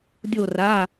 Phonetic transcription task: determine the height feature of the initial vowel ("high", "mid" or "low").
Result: mid